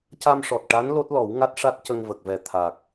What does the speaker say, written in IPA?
c a˧ m ʂ ɔ˨˩ t̚ ʈ a˧˥ n l o˦˥ t̚ l ɔ˨˩˦ w ŋ a˦˥ t̚ ʂ a˦˥ t̚ c ə˧ ŋ v ə˨˩ k̚ v ɛ˨˩ t̪ʰ a˨˩ k̚

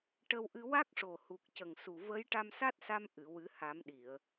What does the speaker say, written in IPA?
ʈ ə˧ w ʔ ɨ˧ w a˦˥ k̚ ʂ o˨˩ h u˨˩ k̚ c ə˨˩ ŋ s u˨˩ v ə˧˥ j ʈ a˧ m s a˦˥ t̚ s a˧ m ʔ ɨ˨˩˨ w ɨ˨˩˦ h a˨˩˦ m ɗ i˨˩˨ ə̯

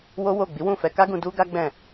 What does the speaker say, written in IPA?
w o˦ w o˦˨ ɡ͡b i˨˦ w ũ˦˨ f ɛ˧ k a˦ ɡ ũ˧ d u˦ ɡ a˦ ɡ͡b ɛ̃˦˨

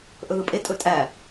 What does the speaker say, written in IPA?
ʔ ɵ ð ɯ pʼ e tʼ ɵ tʼ æ

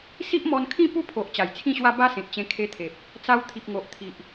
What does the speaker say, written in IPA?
s i˦ ʔ m ɔ˧ n kʰ ĩ˥˧ p u˥˧ pʰ o˨ ʔ t͡ɕ a˨˩ j t͡sʰ ĩ˥˧ ɕ w a˦ b a˦ s ẽ˨ t̚ t͡ɕ ẽ˧ kʰ e˧ t̪ʰ e˨ p̚ | t͡s a˧ w t̪ʰ i˨ p̚ ŋ o˨ ʔ t̪ʰ i˨ ʔ

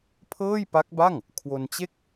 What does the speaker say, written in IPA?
pʰ ɤː˥˩ j p a˦˥ k̚ b a˥˩ ŋ | kʰ w o˧ n t͡ɕ e˥˩ k̚

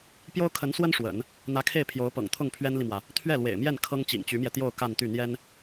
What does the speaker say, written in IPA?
p j o˥ ʊ̯ kʰ ə˧˥ n s w ə˥ n ʂ w ə̰˨˩˦ n | n̪ ä˧˥ kʰ e˥˩ ɪ̯ pʰ j o˧˥ ʊ̯ p ɤ̰˨˩ ŋ t̪ʰ ʊ˥˩ ŋ pʰ ɥ ɛ˥ n l i˨ m w ä˩ | t̪ʰ ɥ ɛ˥˩ l w ḛ˨˩ ɪ̯ m j ɛ˥˩ n kʰ ɤ˥ ŋ t͡ɕ ḭ˨˩ ŋ t͡ɕ y˧˥ m j ɛ˧ t̪ j o˥˧ ʊ̯ k a˥˧ n t̪ y˥˩ n̪ j ɛ˥ n

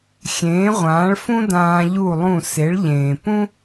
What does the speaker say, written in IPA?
xʲ ẽː˩˥ ʁʷ ãː˩˥ ɭ f ũ˥ d ãː˧ ʎ u˥˩ lˠ ũ˥˩ s e˩˥ ɭ ʎ ẽː˩ p ũ˥

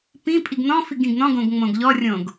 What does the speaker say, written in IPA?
p ĩ pʼ i ɡ n ɔ̃ f i ɡ ĩ ɡ n ɔ̃ ɡ õ ɡ ŋ͡m õ ɡ ʎ ɔ rʲ õ ɡ

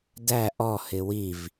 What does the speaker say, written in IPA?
d æ ʔ ɔ h ɪ w i v

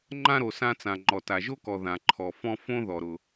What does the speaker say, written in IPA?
ŋ͡ǃ ã˥ ɾ o˩ s ã˥ t͡s ã˩ ŋ͡ǃ ɔ˩ t a˩ ʒ o˥ k ɔ˩ ð ã˩ ǃʰ ɔ˩ f ɔ̃˥ f õ˥ ð ɔ˩ ɾ ʊ˩

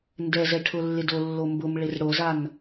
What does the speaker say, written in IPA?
n d ɛ z ɛ ʈʰ ʊ lː ɪ d o lː o m b ʊ m ɭ ɪ r ɽ o z a n

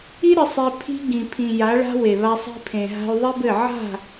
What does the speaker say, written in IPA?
i˦ ɾ ɨ˧ sˤ i˧ pʰ i̤˦ ɡ ĩ˨ pʰ ĩ˨ j a˨˦ ɭ a̤˦ w e˨ β a˧ sˤ i̤˧ pʰ ẽ˨ ɦ a̤˧ y̯ ðˤ i˦ b ɘ˦˨ ʕ a̤˦˨

